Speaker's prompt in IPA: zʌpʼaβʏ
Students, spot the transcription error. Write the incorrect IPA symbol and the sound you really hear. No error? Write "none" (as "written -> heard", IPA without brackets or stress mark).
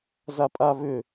ʌ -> a